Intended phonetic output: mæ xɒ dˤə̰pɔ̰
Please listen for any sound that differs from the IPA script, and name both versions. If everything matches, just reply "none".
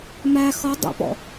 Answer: none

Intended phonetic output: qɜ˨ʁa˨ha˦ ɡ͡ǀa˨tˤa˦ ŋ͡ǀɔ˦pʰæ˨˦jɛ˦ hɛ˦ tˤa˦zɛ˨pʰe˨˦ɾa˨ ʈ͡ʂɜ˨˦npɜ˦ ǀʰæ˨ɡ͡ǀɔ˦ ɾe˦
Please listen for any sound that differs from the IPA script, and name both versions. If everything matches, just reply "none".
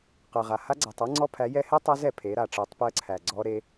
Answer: n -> tˤ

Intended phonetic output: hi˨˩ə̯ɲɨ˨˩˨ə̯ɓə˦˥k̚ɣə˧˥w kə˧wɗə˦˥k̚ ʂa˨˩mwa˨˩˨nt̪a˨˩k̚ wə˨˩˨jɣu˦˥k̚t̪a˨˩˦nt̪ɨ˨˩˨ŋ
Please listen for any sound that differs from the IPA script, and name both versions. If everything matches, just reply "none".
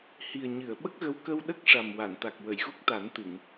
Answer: none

